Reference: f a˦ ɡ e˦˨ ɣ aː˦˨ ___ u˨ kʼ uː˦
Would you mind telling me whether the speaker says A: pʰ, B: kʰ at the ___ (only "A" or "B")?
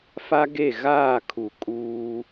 B